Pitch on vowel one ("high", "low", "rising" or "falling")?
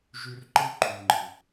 high